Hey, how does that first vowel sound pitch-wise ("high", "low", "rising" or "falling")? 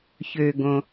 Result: low